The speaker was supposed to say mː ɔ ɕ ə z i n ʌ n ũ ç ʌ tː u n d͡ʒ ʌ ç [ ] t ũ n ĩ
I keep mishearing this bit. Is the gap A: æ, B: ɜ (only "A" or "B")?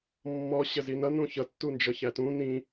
A